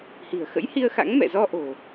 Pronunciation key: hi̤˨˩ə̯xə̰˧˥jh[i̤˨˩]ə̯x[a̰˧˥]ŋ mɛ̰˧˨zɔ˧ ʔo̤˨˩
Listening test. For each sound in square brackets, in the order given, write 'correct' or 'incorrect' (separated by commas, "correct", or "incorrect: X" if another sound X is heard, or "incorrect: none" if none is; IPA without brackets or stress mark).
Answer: incorrect: i˧, correct